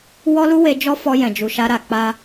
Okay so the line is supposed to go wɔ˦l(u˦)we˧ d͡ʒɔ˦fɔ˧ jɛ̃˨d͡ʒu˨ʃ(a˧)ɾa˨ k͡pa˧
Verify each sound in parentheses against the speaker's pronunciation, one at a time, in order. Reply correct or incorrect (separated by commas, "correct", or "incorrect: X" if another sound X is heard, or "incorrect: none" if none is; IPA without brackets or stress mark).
correct, correct